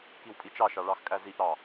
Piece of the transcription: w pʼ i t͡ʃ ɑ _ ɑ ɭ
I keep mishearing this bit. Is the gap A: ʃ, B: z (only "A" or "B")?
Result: A